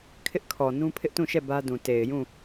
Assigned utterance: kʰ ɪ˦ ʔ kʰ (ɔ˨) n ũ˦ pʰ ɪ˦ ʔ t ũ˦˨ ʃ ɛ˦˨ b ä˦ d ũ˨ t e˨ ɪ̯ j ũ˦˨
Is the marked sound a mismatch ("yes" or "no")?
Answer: no